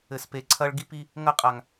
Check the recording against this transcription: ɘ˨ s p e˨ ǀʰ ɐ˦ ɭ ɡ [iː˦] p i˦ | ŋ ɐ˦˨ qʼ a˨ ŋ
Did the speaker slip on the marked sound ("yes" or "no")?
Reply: yes